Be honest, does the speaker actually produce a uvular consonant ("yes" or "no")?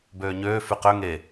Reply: yes